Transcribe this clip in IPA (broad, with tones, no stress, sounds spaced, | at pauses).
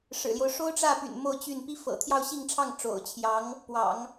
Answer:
ʂ ɻ̩˨˩ l j o˦ ʊ̯ ʂ o˥ ʊ̯ ʈ͡ʂ ä˥˩ p y̰˨˩ n m o˥˧ ʊ̯ t͡ɕ y˥˩ n p i˥ f ɤ̰˨˩ t̪ʰ j ɑ˥˧ ʊ̯ ɕ i˥˧ ŋ ʈ͡ʂʰ ɑ˥˩ ŋ ʈ͡ʂ o̰˨˩ ʊ̯ t͡ɕʰ j ɑ˧˥ ŋ | p w ɑ̰˨˩˦ ŋ